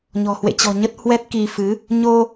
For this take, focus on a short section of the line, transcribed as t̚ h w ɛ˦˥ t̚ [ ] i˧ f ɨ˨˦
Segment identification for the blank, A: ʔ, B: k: B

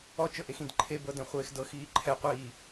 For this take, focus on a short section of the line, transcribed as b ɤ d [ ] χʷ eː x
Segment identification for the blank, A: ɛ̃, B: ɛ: A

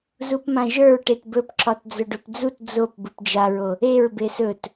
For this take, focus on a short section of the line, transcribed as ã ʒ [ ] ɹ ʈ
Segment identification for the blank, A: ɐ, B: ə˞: B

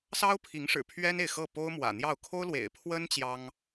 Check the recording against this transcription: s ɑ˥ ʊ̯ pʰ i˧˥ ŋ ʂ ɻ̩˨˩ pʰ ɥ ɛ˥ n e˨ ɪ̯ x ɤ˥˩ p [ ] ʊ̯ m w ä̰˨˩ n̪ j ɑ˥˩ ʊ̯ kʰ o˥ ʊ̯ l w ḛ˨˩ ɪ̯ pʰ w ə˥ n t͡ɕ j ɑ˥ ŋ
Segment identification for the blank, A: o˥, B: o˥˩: A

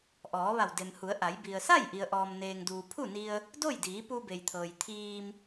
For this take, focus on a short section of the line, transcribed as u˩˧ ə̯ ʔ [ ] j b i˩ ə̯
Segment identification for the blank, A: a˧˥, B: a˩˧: B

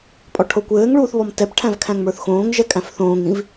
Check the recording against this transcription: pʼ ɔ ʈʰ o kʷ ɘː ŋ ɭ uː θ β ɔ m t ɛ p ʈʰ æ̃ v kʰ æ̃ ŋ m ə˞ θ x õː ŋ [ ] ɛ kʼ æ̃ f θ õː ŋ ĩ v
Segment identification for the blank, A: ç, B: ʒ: B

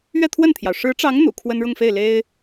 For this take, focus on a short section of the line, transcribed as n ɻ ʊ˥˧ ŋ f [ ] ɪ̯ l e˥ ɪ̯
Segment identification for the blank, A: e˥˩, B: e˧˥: A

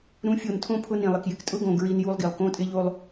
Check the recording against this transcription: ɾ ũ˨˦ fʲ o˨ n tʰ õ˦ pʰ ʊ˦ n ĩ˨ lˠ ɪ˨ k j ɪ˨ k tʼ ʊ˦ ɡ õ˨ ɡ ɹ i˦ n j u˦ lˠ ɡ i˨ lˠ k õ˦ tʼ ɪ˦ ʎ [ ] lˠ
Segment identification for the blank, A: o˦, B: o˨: A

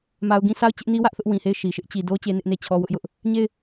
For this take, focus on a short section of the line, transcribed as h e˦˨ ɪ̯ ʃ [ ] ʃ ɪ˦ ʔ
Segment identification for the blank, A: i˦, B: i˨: B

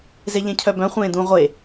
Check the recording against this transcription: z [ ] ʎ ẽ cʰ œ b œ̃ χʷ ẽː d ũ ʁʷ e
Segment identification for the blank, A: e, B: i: A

